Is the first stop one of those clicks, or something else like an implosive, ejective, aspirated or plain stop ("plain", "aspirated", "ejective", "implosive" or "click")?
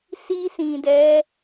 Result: plain